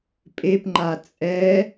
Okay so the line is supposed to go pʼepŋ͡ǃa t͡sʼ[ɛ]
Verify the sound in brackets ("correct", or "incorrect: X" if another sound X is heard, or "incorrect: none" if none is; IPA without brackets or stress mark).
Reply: correct